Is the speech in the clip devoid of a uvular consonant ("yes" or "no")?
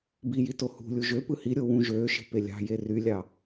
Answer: yes